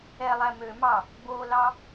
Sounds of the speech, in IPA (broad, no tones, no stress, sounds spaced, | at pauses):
ɛ lˠ æ m ø m ɑ | b o l ɑ